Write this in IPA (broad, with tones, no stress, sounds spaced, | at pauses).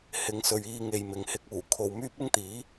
h ɪ˨˧ ŋ s ɵ˨ ɥ iː˧ ŋ e˨ j m ɪ˨ ŋ h ɪ˧ k̚ uː˨˩ kʰ o˨ w m yː˥ p̚ ɪ˥ ŋ t̪ iː˨˥